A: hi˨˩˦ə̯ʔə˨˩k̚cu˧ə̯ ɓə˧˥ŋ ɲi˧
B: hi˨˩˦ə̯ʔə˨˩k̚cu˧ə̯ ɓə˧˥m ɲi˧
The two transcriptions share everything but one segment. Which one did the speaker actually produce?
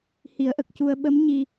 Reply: B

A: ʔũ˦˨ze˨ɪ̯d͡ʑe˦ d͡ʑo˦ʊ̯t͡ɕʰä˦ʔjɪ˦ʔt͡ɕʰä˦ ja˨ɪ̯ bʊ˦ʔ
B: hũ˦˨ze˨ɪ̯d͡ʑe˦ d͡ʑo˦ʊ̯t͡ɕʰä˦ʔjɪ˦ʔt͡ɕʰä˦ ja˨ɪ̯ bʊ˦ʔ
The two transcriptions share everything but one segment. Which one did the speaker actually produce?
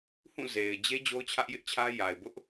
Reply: B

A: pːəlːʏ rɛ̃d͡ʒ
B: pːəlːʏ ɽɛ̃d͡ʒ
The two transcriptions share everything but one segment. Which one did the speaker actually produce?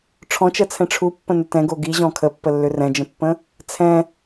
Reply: A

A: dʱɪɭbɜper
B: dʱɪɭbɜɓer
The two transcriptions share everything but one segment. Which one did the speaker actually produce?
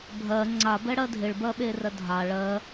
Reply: B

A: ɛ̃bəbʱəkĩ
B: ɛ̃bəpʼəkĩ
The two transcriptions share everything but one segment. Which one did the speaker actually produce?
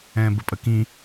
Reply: B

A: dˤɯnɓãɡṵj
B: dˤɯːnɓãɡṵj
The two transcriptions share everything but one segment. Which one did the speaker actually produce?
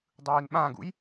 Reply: B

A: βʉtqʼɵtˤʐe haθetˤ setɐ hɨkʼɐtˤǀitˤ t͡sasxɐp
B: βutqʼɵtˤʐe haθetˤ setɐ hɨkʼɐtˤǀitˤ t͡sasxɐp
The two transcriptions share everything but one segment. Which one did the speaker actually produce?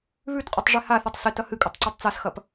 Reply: A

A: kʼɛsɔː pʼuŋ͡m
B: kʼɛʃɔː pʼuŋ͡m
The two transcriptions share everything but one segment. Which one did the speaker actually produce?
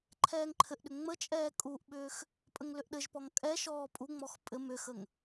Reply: B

